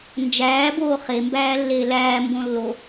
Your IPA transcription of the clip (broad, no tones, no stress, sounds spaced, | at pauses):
n d͡ʒ æː b oː χ e m b æː lː eː l æː m b õ lː o